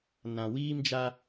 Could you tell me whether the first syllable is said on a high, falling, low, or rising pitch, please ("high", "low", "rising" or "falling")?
low